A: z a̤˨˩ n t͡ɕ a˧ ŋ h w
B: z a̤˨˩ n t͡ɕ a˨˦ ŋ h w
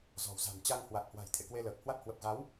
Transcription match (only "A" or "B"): A